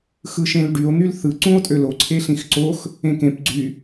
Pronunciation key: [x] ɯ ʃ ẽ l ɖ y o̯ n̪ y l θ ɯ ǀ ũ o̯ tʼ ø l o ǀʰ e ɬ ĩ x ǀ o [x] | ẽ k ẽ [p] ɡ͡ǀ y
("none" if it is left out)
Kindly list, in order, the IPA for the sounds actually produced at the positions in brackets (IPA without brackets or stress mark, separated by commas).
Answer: x, x, p